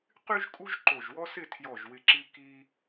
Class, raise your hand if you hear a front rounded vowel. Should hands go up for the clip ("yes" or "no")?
yes